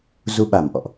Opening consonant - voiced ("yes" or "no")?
yes